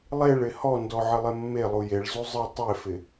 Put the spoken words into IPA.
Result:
lˠ e ɭ ɪ h ɔ n d ɔ ʕ ɪ lˠ e mː e lˠ u j e ɭ z u zˤ ɨ tˤ e f ɪ

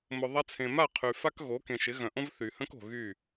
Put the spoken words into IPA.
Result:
m ʊ˨ ðˤ a˧ t͡sʰ ẽ˨ m a˦˨ qʰ y˨ f a˦ k ɣ o˨˦ k ẽ˨ ʃ ɪ˨˦ ɣ œ̃˨ ʔ õ˦ v θ y˨ h ə̃˦ k o̤˨ ɣ y˦˨

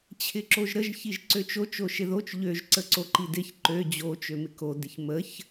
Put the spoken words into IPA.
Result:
t͡ɕʰ ɪ ǁ o ʒ ɾ ə ʒ ç i ʒ ǀ ø t͡ʃ o t͡ʃ o ʃ ɪ ð o t͡ʃ ʎ ø ʒ ǀ ə ǀ o ǃ i d ɪ ç ǃ ø d͡ʑ o t͡ʃ ø m ɪ k o d ɪ ç m ə ç

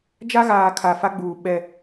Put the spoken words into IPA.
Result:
d͡ʒ a˦ ɣ aː˨ kʰ a˨ f a˦ ɡ͡b uː˨ ɓ ɛ˦˨

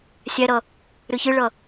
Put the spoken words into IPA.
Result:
sʲ æ ɾ ʌ | ɾ ɨ ç ɨ ɭ ʌ

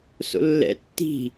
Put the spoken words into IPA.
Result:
s o̰ lː ɛ̰ tː i̤

